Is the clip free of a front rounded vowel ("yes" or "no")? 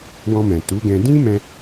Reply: yes